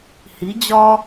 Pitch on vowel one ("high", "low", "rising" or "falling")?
rising